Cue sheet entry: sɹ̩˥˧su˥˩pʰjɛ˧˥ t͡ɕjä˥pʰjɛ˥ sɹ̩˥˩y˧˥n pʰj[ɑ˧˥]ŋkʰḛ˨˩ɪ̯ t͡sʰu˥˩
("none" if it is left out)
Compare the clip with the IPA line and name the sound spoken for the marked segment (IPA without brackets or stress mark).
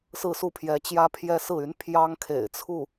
ɑ˥